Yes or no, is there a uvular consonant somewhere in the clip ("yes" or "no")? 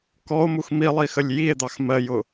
no